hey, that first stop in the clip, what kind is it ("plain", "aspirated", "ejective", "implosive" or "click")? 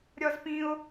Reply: plain